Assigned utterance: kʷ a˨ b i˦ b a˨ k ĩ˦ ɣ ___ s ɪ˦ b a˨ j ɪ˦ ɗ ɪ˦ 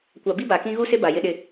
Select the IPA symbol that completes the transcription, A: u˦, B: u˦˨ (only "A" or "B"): A